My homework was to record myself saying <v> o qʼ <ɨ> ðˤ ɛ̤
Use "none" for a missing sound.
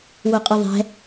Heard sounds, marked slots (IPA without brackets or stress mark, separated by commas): w, ɨ